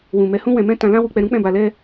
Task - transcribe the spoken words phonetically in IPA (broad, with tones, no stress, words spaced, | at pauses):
wũ˨ mɛ˨˦hũ˦wɛ̃˧mɛ̃˦ tã˧lã˦wu˧ k͡pɛ˧ɾũ˦k͡pɛ̃˦˨ba˧ lɛ˦